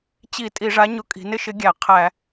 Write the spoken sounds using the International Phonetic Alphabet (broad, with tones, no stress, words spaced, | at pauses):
t͡ɕi˧˩˧ tʼi˧˩˧ʐa˨˥ɲʊ˨˥kʼi̤˩˧ nɪ˦ʃɪ˨˥ɡʲæ˧˩˧ qʰæ˧˩˧